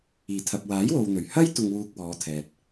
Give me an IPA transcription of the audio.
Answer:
iː˨˩ t̪ʰ ɐ˨ p̚ w aː˨˥ j w o˨ w n̪ ɵ˨˩ ɥ h ɐ˥ j t̪ ʊ˧ ŋ w uː˧ k̚ w ɔː˨˧ t̪ʰ ɛː˨ t̚

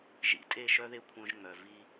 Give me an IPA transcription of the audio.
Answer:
ʒ ḭ˨ tʼ e˦˨ ʃ œ˦ ð e˦ kʷʰ œ̃˦ ʒ ŋ͡m œ˨ v i˦

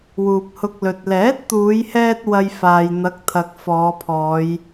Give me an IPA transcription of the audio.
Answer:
w uː˨ p̚ h ʊ˧ k̚ l ɵ˨ t̚ l ɛː˨˥ t̚ t̪ uː˨˧ j h ɛː˧ t̚ w ɐ˧ j f aː˨ j n̪ ɐ˨˥ k̚ t̪ʰ ɐ˨ k̚ f ɔː˨˧ pʰ ɔː˨˧ j

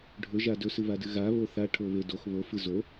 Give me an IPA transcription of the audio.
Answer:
ɖʱ ɵ ʒ a d ɵ s ɨ β a d ɨ ɣ a β o θ a ʈʰ o β e d o x β o f ɨ z o

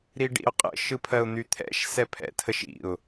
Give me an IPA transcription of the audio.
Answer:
ɾ i ɖ ḭ ʊ̯ qʼ ə̰ ʃ ɯ pʰ ɜ ʊ̯ n̪ y t̪ʰ ɛ̰ ʃ s ɛ pʰ ɛ̰ tʰ ə ʃ ḭ ʊ̯

